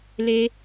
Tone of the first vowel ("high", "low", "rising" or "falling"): high